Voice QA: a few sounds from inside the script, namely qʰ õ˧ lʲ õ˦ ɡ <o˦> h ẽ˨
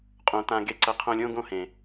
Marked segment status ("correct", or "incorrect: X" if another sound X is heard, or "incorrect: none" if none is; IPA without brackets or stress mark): incorrect: õ˦